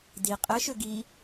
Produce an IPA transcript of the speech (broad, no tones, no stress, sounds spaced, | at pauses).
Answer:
d i qʼ ɘ ʃ ø ɡ i